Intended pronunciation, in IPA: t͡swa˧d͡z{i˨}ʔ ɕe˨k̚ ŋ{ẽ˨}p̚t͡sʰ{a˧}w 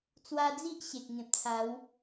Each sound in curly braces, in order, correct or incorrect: incorrect, correct, incorrect

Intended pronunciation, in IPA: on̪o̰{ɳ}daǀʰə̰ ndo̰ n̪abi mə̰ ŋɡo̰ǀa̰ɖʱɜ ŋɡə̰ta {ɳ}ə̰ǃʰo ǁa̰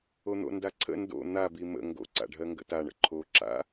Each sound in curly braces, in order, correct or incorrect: incorrect, correct

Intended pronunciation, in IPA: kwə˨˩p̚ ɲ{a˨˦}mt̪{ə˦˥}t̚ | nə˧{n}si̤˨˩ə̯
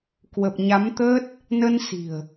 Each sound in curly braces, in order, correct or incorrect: correct, correct, correct

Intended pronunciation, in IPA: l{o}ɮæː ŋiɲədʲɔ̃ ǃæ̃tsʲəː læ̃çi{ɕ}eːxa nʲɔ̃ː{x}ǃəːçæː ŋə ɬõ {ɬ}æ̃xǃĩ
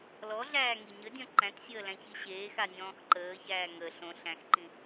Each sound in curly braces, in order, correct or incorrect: incorrect, correct, correct, correct

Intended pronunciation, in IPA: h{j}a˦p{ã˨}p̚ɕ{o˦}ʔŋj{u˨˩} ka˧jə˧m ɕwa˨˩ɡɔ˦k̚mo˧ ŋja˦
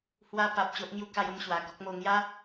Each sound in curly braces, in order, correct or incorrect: incorrect, incorrect, correct, incorrect

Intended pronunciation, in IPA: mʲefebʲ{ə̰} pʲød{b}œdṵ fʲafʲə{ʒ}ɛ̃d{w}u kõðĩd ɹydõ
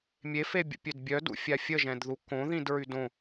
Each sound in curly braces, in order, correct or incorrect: correct, incorrect, correct, incorrect

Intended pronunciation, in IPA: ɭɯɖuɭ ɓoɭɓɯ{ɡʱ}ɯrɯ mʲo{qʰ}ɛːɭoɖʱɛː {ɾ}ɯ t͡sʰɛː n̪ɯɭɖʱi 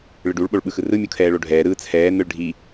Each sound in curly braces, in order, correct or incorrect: incorrect, incorrect, correct

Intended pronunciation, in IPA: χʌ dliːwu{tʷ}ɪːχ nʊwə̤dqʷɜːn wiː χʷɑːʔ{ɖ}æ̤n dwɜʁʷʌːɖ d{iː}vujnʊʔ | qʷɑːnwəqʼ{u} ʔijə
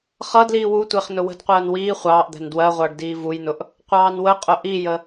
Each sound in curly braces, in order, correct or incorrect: correct, incorrect, correct, incorrect

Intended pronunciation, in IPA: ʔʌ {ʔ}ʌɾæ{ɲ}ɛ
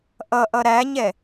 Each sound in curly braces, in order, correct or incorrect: correct, correct

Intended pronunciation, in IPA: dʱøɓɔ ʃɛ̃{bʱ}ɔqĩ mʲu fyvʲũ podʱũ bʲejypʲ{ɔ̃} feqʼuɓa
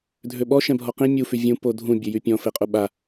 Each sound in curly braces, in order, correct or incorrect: correct, correct

